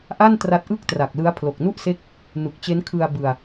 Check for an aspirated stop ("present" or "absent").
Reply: present